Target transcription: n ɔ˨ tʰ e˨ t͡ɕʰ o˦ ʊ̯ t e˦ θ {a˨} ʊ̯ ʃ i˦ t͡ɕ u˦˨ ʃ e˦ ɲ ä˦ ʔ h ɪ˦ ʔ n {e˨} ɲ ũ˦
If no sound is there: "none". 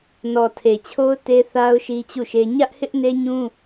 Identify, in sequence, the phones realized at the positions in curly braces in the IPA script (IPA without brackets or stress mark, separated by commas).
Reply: a˦, e˦